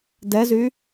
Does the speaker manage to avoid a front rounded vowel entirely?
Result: no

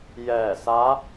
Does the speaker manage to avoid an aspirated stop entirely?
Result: yes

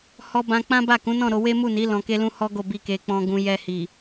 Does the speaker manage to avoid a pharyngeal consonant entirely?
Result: yes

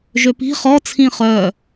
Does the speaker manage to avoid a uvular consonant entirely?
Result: no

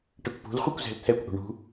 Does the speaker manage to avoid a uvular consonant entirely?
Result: no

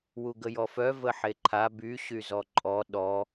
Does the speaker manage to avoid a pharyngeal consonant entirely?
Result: no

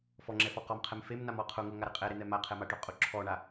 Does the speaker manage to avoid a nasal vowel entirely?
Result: yes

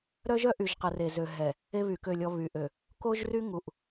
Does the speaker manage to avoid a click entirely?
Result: yes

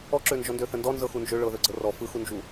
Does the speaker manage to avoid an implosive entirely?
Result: yes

